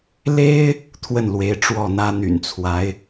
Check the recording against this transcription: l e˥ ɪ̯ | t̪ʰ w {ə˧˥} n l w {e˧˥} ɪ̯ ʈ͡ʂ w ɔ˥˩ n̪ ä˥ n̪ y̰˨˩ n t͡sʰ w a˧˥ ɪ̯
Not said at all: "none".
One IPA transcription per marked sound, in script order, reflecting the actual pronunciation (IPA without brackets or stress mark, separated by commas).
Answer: ə˥˩, e˧˥